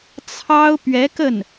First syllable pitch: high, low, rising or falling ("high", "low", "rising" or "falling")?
high